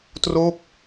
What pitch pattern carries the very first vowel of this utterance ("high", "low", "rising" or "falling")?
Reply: falling